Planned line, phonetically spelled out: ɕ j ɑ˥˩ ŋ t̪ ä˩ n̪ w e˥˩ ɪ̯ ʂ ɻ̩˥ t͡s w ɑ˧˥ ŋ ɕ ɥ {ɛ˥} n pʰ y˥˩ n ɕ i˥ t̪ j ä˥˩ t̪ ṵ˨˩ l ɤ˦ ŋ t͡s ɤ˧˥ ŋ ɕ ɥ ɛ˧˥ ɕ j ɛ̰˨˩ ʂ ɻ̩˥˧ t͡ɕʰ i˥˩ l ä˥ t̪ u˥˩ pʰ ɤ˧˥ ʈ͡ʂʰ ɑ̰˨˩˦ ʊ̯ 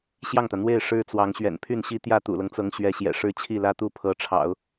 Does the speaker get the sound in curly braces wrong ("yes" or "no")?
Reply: yes